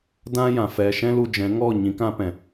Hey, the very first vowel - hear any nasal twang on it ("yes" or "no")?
yes